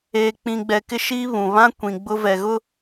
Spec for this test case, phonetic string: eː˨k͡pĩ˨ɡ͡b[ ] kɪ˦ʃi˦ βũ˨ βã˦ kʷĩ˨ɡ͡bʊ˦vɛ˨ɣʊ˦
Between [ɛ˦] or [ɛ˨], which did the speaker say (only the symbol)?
ɛ˨